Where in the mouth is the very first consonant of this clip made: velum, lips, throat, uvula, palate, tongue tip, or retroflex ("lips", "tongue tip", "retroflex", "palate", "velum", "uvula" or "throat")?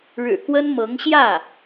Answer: retroflex